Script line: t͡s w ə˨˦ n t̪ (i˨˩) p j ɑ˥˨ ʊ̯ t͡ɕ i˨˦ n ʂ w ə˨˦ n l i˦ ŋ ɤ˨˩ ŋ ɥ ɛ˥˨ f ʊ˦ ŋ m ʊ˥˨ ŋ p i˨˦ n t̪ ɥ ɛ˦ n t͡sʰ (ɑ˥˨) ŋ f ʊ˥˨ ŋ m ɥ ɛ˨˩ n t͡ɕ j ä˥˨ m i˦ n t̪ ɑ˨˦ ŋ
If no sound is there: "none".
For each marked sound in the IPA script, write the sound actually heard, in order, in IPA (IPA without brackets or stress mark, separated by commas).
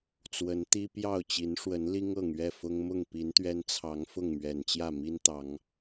i˦, ɑ˨˦